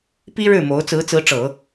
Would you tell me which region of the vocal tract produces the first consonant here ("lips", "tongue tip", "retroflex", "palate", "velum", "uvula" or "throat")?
lips